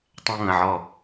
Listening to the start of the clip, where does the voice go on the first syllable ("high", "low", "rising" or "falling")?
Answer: high